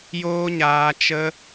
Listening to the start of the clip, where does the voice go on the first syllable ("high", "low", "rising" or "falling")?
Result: high